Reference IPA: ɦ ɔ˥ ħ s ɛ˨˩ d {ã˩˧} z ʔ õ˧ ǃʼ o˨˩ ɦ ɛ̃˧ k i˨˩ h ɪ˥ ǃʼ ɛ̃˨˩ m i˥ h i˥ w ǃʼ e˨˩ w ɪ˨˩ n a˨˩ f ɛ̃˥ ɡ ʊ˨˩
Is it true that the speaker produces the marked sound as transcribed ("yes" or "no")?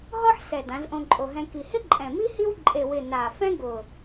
yes